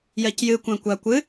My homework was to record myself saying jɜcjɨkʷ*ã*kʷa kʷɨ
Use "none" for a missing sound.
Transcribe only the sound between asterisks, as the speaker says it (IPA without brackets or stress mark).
ã